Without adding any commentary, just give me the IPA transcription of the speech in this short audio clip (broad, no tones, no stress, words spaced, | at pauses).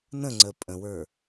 nə̃ŋ͡ǀə pʼə̃wə˞